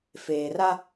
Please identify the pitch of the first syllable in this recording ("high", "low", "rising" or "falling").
low